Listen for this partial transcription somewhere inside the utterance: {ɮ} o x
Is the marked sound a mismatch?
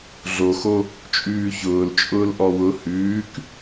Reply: no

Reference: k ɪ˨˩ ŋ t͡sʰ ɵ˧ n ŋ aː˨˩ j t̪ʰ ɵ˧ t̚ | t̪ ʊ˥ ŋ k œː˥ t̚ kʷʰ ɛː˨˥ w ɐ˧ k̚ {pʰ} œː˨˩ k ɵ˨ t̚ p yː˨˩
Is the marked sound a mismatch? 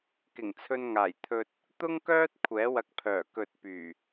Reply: no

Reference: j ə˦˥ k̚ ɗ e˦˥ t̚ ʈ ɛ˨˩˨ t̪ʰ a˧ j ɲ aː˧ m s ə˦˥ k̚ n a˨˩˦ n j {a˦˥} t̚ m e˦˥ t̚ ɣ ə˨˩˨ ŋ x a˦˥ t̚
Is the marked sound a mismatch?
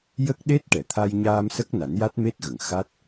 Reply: no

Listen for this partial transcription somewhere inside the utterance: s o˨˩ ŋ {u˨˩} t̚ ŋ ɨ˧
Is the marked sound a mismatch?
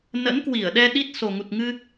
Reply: no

